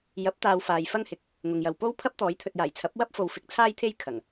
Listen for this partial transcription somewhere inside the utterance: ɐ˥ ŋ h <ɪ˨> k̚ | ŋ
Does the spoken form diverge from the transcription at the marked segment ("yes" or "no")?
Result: no